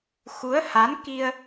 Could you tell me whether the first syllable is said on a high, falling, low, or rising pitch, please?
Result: rising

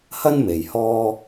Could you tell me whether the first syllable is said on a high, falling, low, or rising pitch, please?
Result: high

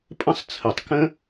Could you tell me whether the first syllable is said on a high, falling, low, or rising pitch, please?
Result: high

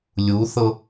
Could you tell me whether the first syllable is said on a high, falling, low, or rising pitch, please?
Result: rising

